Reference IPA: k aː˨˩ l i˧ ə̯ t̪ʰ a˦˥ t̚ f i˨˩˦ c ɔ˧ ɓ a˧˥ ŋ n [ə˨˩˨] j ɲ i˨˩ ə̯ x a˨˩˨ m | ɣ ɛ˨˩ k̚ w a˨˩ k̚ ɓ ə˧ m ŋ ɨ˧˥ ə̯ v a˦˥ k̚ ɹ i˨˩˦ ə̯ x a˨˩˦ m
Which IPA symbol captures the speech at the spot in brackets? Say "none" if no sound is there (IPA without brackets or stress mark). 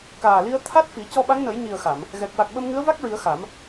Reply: ə˨˩˦